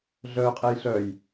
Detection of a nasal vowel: absent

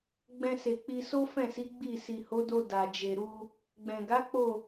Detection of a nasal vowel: present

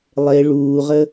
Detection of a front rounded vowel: absent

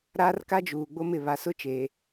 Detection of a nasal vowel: absent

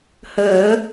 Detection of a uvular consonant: absent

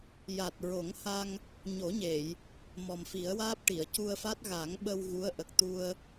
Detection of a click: absent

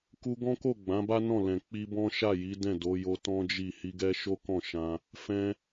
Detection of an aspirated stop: absent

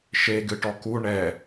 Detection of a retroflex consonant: present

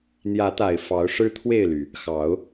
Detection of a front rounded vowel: present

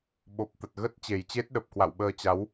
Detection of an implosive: present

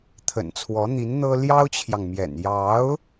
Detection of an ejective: absent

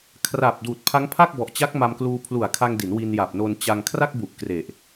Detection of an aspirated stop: present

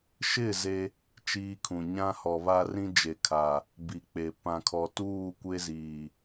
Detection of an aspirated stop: present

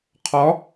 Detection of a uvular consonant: present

